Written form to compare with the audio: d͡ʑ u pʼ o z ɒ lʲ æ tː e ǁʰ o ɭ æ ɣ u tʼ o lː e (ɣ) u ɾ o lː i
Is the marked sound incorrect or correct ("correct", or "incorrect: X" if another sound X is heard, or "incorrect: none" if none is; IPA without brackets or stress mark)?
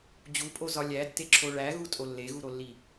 correct